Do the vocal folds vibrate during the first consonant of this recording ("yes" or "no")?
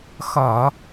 no